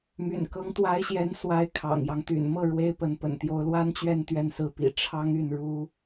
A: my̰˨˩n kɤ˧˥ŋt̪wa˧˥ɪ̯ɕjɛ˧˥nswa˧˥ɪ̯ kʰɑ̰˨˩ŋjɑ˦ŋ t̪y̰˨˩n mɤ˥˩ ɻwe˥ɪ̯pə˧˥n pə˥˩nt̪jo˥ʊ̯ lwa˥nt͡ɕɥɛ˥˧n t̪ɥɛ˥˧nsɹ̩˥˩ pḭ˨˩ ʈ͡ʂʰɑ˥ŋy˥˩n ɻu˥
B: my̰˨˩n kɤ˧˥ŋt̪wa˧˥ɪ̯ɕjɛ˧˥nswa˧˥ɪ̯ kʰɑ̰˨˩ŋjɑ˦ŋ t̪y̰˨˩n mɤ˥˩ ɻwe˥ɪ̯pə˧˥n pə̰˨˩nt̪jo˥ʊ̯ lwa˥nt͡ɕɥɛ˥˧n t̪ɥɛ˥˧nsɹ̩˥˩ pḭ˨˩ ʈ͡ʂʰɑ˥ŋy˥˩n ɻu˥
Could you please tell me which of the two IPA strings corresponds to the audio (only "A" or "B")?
B